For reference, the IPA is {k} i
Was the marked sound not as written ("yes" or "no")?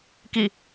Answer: no